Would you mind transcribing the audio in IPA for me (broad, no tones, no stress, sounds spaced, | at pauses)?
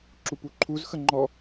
ǁ u p u ǃʰ u z x ə ŋ͡ǃ ɔ